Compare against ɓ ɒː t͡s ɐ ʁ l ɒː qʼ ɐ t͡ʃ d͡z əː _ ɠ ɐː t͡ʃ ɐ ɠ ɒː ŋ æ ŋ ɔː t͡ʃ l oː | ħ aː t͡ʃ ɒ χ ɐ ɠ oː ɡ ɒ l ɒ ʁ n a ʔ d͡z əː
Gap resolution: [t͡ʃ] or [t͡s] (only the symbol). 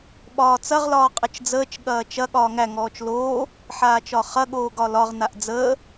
t͡ʃ